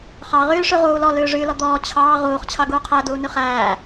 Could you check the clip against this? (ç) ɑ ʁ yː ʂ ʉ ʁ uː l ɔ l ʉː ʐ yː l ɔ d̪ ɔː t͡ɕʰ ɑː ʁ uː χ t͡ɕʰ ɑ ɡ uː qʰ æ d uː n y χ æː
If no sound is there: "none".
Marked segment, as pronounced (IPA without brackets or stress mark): χ